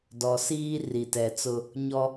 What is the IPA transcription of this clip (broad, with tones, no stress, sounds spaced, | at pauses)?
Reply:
d ɔ˨ s iː˦ r i˨ t ɛ˨ t͡s ʊ˦ | ɲ ɔ˦